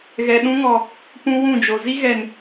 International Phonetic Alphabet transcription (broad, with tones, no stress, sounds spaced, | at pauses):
ɣ ɛ˨ ɗ ũ˦ ŋ ɔ˨ | p ũ˦ w ũ˦˨ d͡ʒ o˨ z i˦ ɣ ɛ˨ n